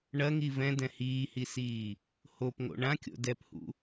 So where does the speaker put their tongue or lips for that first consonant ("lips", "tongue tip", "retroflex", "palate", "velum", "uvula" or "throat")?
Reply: retroflex